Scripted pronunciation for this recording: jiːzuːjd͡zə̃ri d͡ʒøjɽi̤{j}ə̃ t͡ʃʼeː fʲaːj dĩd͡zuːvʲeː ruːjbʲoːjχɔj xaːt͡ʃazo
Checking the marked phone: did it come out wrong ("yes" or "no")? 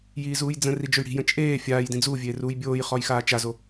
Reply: no